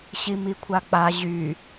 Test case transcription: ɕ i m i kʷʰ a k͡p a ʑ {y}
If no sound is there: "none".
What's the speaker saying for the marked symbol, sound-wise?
y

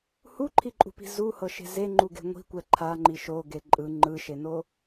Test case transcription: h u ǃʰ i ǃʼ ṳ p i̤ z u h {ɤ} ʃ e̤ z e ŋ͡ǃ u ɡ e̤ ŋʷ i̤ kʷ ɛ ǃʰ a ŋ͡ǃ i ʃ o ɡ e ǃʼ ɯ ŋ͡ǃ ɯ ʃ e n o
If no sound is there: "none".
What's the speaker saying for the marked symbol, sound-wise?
ɤ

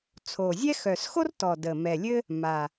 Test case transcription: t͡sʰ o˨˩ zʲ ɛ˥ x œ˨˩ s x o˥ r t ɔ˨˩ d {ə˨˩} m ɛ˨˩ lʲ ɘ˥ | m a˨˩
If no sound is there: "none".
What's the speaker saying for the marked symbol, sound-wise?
ə˨˩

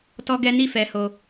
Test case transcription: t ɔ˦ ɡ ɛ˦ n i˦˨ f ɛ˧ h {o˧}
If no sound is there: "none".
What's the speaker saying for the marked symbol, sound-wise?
o˧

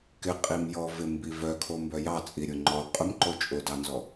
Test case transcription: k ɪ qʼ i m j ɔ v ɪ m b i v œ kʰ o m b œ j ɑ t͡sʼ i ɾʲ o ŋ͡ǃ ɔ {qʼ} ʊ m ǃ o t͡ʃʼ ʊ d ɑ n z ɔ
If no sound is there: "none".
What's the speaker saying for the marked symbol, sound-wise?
qʼ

